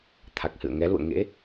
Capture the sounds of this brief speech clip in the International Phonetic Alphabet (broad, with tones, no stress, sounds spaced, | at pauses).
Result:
t̪ʰ a˨˩ k̚ h ɨ̰˧˨ ə̯ ŋ ɛ˨˦ l ṵ˧˨ ə̯ ŋ ḛ˧˥